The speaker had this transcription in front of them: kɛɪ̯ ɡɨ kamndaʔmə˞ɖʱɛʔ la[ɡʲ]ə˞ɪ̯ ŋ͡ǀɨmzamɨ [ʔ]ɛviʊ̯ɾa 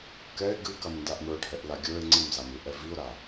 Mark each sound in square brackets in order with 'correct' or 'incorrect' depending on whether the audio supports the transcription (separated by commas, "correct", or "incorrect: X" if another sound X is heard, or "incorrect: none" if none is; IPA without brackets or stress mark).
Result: correct, correct